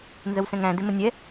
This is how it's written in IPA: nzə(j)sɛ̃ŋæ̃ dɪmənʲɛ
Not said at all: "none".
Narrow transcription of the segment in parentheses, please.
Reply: w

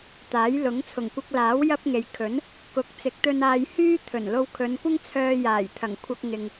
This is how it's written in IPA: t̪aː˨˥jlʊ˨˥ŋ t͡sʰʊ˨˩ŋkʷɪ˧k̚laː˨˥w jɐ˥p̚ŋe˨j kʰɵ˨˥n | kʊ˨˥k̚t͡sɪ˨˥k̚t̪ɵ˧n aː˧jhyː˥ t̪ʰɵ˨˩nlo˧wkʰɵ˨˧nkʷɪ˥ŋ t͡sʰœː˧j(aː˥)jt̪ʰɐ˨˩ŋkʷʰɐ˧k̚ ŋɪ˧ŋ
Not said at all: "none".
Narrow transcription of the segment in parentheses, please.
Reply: aː˨˩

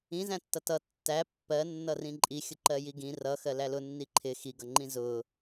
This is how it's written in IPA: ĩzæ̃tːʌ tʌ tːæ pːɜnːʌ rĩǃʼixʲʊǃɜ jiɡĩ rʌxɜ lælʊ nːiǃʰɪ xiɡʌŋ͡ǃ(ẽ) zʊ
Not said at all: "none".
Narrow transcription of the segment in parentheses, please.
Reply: ĩ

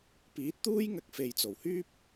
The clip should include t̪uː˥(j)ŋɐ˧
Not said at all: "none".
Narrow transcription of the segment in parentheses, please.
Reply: j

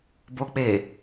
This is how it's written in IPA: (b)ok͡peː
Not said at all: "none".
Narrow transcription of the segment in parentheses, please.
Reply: b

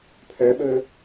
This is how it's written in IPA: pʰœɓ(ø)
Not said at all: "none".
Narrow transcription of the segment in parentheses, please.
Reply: ɵ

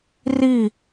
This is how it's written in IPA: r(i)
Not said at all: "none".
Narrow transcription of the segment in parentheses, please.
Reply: i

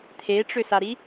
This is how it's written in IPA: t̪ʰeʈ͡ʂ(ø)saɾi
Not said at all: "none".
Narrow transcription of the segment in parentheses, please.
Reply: ø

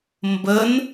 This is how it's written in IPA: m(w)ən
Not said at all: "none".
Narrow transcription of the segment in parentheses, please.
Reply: b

